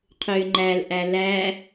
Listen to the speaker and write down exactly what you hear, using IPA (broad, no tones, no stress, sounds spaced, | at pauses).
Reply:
qʰ ʏː ŋ͡ǃ æ l ʔ æ l æ